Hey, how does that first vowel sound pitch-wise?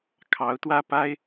rising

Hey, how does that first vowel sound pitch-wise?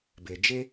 low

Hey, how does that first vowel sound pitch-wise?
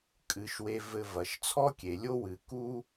rising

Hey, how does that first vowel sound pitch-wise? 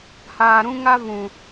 low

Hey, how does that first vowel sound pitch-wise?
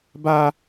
high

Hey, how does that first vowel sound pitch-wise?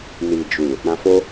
low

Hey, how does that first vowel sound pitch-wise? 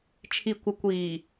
low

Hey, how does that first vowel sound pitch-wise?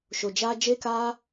low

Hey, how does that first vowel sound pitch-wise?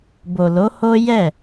low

